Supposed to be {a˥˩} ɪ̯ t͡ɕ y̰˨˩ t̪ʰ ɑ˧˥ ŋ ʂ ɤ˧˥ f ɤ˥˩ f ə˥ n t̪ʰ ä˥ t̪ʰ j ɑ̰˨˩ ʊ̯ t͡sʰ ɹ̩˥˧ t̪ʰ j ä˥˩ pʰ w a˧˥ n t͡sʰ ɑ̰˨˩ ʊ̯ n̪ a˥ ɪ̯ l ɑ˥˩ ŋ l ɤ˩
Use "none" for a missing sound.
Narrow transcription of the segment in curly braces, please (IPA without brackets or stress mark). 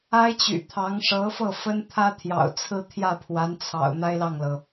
a˥